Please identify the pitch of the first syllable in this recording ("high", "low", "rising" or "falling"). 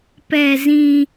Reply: low